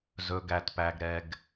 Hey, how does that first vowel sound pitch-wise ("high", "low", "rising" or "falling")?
low